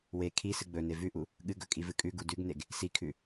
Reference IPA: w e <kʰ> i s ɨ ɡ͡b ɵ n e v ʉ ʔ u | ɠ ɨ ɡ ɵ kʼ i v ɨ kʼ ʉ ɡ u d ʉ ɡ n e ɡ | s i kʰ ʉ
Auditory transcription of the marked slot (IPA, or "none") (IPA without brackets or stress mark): kʰ